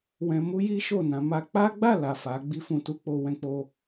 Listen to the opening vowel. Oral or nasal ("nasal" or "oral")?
nasal